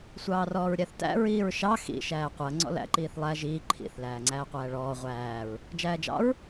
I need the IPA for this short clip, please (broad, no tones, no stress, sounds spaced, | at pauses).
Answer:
sʷ ɑː r ɔː ɹ ɾʲ æ θ t æ̰ ɹ iː ɹ ʃ ɑ x ḭ ʃ æː qʷ ɜ ŋ͡ǀ ɔ̰ l æ̰ ǃ iː θ lˠ æ ʒ iː ǃʰ ḭ θ l æː ŋ͡ǀ æː qʷ æː ɭ ɔː ʁʷ æː ɹ | d͡ʒ æː d͡ʒ ɑ̰ ɹ